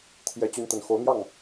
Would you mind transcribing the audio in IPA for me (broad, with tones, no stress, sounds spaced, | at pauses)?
t̪ʰ j ɛ˨˦ t͡ɕ y˨˦ n t̪ ə˨˦ n x o˨˦ ʊ̯ n̪ j ɑ˥˨ ŋ